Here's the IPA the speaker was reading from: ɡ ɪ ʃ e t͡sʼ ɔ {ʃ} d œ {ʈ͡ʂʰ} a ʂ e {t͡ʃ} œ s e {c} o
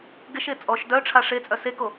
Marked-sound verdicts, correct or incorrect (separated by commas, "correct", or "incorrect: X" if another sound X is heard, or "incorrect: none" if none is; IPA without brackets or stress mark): correct, correct, incorrect: t͡sʼ, incorrect: k